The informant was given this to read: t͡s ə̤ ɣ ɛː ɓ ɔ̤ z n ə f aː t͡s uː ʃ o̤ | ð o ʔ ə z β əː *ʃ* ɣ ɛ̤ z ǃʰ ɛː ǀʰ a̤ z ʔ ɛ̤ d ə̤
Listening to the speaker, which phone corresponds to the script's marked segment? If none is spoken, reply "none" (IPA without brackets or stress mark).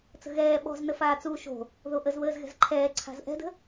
z